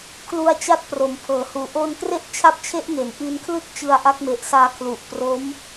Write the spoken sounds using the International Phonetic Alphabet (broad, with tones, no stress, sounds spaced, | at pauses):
kʰ l u˧ a̯ t͡ɕ a˦˥ t̚ p r o˩˦ m pʰ ɤː˩˦ h uː˨˩ ʔ o˧ n k r e˥˩ ʔ t͡ɕʰ a˦˥ p̚ t͡ɕʰ e˦˥ ʔ ŋ e˩˦ n ʔ i˧ n kʰ l ɯ˥˩ k̚ t͡ɕ ɯ˧ a̯ ʔ a˦˥ k̚ m e˨˩ ʔ s aː˧ kʰ l u˨˩ ʔ p r o˦˥ m